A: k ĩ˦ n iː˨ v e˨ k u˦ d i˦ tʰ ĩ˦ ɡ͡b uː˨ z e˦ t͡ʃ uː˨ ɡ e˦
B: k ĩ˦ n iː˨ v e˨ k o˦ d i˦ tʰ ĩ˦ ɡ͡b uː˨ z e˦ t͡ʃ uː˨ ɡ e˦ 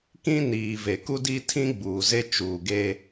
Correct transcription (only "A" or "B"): A